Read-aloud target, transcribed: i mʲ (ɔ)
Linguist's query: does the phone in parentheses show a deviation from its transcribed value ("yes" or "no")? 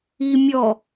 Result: no